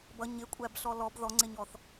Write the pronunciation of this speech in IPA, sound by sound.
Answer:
bʌ ɲɪkʷʼæbɬɔ lɔb ðɔŋ͡ǀɪɲɔθ

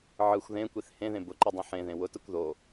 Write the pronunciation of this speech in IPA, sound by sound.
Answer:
ʕɯxʷ ðẽkʷiθ hẽðẽ bʊǃɯdˤĩ ħẽðẽ wʊtɯkʷ ðo

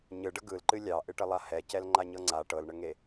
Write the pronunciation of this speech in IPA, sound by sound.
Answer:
ɲɯɖə ɡɯlǃɨ lʲɑʔɨʈəlˠa hɛcɛlŋ͡ǃaɲɤ ŋ͡ǀa ʈɤlɳəŋe

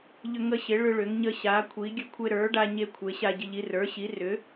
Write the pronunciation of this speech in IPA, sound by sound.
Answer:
ʎʏ˧ŋə˧ɕɪ˩˥ ɭʏ˧ ɭʏ˩˥ŋɲə˧ɕa˩˥kʷʰi˩˥ ɡʲə˧kʷʰe˧ɾə˞˩˥ɖa˧ ɲe˧kʷʰe˩˥ ɕa˧ɟɪ˧ʎ i˧rə˞˩˥ɕi˩˥ rʏ˩˥

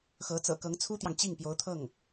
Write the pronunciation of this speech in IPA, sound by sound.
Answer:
xɤ˧˥ t͡sɤ̰˨˩kɤ˧˥ŋt͡sʰu˥t̪jɑ˨ŋ t͡ɕi˥˩ŋpjo˧˥ʊ̯t̪ʰɤ˥˩ŋ

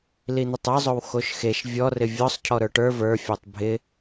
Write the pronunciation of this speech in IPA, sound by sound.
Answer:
lin̪ɪtˤə˞zˤow xoʃxeʃ vʲɔ rɪvʲɔsˤ cʰɔɾə˞ʈə˞ və˞fʲə˞tˤ bʱɪ

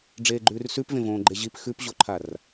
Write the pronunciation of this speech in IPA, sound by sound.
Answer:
ɖ͡ʐeːɡ͡ǃʉːrsʉpvẽ võːɡ͡ǃeʑip xʉpʑoǃʰar

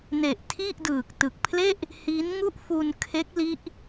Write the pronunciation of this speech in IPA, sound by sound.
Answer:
ne˨˩ʔ tʰi˥˩ʔdɯː˨˩k̚ tɯ˨˩k̚pʰle˥˩ʔ | hi˦˥nŋu˥˩ʔ fu˧n kʰe˦˥k̚li˦˥ʔ

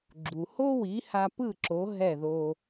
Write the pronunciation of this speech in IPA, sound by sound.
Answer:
ɡ͡ǁu˩ho˥wi˩˥ ha˧pɯ˥˩ǁo˩˥ ɦɛ˥˩ðo˧

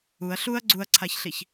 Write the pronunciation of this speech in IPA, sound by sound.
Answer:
uɐ̯ ɬuɐ̯ ɡ͡ǀuɐ̯ǀʰaçɬiç

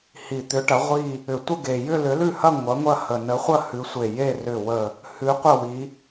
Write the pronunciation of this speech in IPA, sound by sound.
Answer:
hi˨˩t̪ʏ˨˥ʈɐ˨˥ ʁʷi˥˧ | ʏ˨˩tʷə˥˧ɡe˨˩ jʏ˥˧lʏ˨˥lʉ˥˧hɐ˥˧ ŋʷɐ˨˥ŋʷɐ˥˧ hə˨˩nə˨˥χʷɐ˥˧ hʉ˨˥sʷe˨˩je˥˧ rʏ˨˩wə˨˩ | hʉ˨˥qʷɐ˥˧wi˨˥

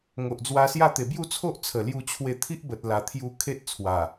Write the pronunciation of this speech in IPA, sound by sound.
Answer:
ŋo˨ʔd͡zwa˧sja˥˧ t̪e˨˩bju˥˧t͡sʰo˦ʔ t͡sʰə˨˩lju˧ t͡ɕʰwe˧ t̪ʰi˦ʔbə˨t̚la˨˩ t̪ʰju˧ kʰe˦t̚t͡sʰwa˨˩

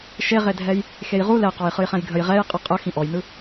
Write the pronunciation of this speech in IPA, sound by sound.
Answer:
ʃeʁedʱɛj | xejʁu lɛqɔj χɯjχɛ̃jɡʱəj ʁɛj qʼɯqʼə xĩʔɔjnɯ

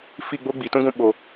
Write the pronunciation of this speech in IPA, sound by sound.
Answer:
fi˦˨ɡ͡bo˦ ɡ͡bi˨tũ˦ɡũ˧ ɓo˨

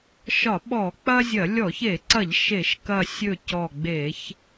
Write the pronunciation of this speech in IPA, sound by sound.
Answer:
ʃɒ˧˩˧ɓɔ˧˩˧k͡pɐ˦zʲɐ˧˩˧ lʲɔ˧˩˧çe˧˩˧ǀɐ˧˩˧ʎ ʃe˧˩˧ʃkɐ˧˩ sʲɵ˧˩ cɔ˧˩ɡ͡be˧˩˧ç

